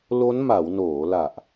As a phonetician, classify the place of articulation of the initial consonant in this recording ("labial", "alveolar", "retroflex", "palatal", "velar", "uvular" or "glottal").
alveolar